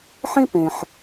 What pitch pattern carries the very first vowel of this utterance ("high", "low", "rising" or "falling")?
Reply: high